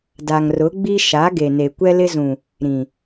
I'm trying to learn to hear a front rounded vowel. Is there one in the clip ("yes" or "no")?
no